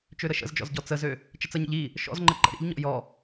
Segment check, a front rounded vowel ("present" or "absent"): present